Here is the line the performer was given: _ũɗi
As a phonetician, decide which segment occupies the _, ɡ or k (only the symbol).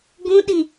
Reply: ɡ